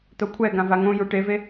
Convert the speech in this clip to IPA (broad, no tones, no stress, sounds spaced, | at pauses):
t̪ o kʷʰ ɛ ɡ ã v a ŋ õ j u ʈ e v e